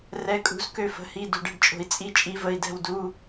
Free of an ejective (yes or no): no